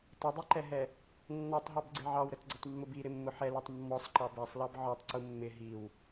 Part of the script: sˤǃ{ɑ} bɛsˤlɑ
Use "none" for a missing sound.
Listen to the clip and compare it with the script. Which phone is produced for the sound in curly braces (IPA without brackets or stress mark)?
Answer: ɑ